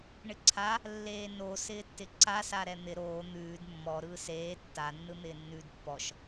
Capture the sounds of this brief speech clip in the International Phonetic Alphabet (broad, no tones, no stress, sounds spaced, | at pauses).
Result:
ɳ ɪ ǀʰ a | lː eː n o s ɪː tː ɪ ǀ a s a ɾ ɛ n̪ ɪ ɾ oː n̪ ʉː d mː ɔ ɾ ɯː s eː tː a nː ɯ n̪ ɪː nː ʉː d pː ɔ ʃ